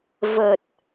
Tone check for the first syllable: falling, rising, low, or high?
low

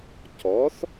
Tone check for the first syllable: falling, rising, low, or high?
rising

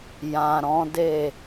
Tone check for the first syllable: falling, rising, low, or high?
low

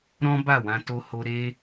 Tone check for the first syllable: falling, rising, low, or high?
high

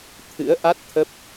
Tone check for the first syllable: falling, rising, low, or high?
rising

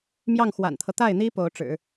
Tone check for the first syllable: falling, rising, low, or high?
falling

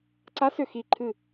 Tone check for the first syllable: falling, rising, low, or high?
rising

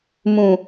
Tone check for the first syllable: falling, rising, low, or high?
low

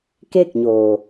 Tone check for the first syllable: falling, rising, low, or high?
falling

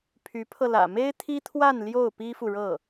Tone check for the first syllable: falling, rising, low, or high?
rising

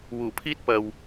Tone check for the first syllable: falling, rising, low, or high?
low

